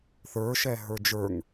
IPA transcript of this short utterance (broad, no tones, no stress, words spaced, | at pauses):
θə˞ʃɛɦə˞ d͡ʒə˞ŋ